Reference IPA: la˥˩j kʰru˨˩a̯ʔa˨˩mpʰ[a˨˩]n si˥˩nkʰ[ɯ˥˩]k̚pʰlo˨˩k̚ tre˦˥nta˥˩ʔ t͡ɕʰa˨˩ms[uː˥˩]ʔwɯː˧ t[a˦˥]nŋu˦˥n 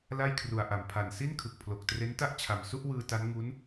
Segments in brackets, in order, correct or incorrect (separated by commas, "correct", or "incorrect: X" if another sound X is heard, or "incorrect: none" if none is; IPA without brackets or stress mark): correct, incorrect: ɯ˨˩, incorrect: u˥˩, correct